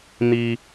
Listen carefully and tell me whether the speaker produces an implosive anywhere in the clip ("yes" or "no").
no